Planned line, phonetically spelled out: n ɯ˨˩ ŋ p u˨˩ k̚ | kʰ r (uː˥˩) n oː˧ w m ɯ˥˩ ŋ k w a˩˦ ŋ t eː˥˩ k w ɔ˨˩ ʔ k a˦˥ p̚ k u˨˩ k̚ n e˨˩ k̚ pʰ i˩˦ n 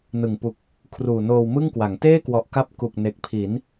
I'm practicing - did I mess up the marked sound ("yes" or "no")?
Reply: yes